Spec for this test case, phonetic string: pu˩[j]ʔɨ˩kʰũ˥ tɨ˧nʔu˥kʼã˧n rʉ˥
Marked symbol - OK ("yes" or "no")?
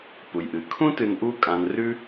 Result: yes